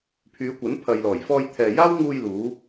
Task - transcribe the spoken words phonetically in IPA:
pʰ yː˨˧ kʷ ɐ˨˥ n pʰ ɐ˨ j l ɔː˨˩ j f ɔː˧ j t̪ʰ ɛː˨ j aː˥ w ŋ uː˧ j l uː˨˧

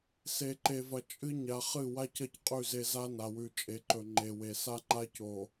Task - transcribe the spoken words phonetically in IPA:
s e˨ ǃ e˨ v ɐ˨ t͡ʃʼ ɨ˦ ɲ a˨ χ ɨ˦˨ w a˦ c ɐ˦˨ c qʼ ʉ˦˨ z e˦ z a˦ n a˨ w ʉ˨ t͡ʃʼ e˨ ǃ ɵ˨ ŋ͡ǃ e˨ w e˨ s a˦ ŋ͡ǃ a˦ c o˨

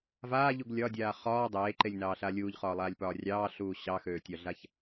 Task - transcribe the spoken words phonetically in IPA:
v aː ʎ u ɡ lʲ ɒ dʲ aː χ ɒː dˤ eː ǃ e lʲ n ɑː ɬ a lʲ uː ʎ χ ɒː lˠ aː lʲ p ɒː rʲ ɑː ɬ uː ɕ ɑ x øː tʲ ɒ ɮ a ç

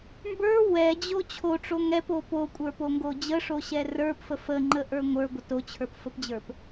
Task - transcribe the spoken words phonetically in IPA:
m b ə˞ w ɛ d͡ʑ o t͡ɕʰ o ʈ͡ʂ o ŋ ɛ p o p o kʷʼ ə˞ p o ŋ ɡ o d͡ʑ ə ʂ o ɕ ɛ r ə˞ p f ə f ə ŋ͡ǃ ə ʔ ə˞ ŋʷ ə˞ ɡʷ ə t o t͡ɕʰ ə˞ p f ə p d͡ʑ ə˞ p

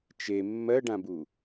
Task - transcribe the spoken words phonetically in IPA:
t͡ʃ e mː ɜ ɖ ã b u

